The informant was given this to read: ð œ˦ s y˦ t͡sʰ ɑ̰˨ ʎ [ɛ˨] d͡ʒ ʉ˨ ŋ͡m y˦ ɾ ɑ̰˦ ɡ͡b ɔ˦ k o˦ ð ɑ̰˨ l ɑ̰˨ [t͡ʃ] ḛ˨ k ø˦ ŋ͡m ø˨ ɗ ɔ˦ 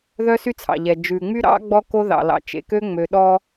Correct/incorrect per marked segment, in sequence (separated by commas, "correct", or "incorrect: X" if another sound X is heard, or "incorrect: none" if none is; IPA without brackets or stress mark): correct, correct